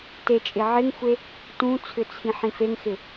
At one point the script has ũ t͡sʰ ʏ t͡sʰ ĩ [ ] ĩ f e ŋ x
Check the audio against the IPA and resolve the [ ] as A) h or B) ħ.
B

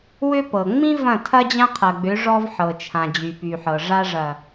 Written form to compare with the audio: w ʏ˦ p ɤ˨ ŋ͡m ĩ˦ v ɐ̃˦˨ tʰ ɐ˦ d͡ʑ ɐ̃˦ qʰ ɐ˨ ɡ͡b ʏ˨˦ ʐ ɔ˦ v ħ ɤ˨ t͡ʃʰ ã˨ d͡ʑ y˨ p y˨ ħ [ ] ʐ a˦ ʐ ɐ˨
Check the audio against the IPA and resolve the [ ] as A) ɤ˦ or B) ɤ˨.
B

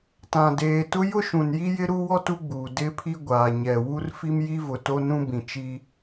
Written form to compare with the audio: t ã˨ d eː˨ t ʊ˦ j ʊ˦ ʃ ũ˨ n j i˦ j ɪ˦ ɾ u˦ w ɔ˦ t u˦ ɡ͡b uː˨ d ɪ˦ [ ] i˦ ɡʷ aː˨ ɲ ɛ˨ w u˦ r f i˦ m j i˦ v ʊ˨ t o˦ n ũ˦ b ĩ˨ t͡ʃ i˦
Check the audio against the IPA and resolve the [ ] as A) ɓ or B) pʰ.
B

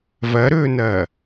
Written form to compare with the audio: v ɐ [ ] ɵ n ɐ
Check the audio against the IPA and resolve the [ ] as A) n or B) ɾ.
B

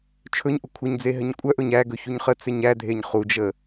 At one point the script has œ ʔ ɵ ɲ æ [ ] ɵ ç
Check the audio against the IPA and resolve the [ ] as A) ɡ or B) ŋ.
A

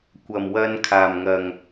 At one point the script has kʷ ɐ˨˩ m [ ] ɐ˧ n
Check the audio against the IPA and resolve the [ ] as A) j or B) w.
B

